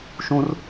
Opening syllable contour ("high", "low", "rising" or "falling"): high